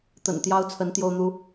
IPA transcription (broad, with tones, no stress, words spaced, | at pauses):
t̪ə̰˨˩nt̪jɑ˦ʊ̯t͡sʰə˨˦n t̪jo˦ʊ̯n̪u˦